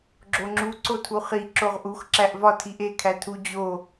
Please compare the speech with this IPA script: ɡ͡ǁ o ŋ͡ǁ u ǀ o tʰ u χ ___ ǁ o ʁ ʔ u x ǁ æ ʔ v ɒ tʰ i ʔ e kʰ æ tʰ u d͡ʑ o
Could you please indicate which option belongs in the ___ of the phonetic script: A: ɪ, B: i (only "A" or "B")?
B